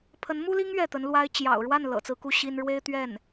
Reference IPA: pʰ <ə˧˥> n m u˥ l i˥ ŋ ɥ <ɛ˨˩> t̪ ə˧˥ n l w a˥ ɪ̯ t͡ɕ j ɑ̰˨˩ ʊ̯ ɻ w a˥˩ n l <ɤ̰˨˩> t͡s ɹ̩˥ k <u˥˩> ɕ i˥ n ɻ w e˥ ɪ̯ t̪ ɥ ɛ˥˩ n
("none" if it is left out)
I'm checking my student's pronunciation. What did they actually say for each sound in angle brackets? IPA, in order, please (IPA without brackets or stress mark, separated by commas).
ə˧˥, ɛ˥˩, ɤ̰˨˩, u˥˩